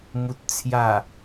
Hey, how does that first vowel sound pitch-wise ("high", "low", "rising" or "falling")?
low